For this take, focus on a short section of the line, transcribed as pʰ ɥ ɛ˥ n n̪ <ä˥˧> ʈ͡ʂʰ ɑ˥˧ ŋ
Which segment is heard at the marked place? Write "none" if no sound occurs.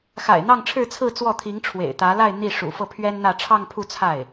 ä˥˧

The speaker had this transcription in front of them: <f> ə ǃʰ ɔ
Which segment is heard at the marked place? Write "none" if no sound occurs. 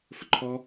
f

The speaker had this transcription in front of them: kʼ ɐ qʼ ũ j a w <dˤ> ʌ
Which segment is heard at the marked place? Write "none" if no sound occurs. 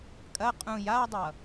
dˤ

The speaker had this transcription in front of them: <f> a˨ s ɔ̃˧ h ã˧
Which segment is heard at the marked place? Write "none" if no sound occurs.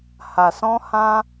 h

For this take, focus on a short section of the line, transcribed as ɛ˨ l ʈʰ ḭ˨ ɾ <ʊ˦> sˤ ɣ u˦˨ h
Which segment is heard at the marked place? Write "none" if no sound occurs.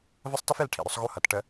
ʊ˦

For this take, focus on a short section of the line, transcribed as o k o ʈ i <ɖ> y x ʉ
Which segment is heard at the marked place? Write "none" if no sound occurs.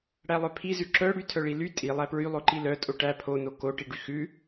ɖ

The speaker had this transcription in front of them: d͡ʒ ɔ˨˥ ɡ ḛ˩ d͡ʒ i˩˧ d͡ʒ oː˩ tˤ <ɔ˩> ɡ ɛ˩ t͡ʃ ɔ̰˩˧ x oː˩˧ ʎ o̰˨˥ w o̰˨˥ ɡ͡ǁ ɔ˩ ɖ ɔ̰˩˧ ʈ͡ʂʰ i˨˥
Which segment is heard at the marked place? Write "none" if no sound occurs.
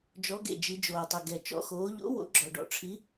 ɵ˩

